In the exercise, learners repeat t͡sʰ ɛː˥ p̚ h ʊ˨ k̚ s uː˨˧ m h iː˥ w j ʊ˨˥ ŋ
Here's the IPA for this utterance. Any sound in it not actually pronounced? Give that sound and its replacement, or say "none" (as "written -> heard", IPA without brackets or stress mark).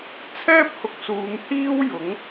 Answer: none